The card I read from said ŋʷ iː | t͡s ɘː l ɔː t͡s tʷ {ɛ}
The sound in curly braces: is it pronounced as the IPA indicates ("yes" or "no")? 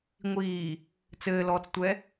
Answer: yes